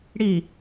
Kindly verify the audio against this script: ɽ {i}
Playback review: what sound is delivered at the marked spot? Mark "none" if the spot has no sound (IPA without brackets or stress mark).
i